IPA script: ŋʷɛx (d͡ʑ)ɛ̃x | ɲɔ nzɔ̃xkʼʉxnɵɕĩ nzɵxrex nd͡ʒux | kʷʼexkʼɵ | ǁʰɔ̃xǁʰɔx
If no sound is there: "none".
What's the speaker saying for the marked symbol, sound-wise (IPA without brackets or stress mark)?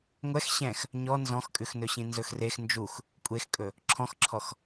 ɕ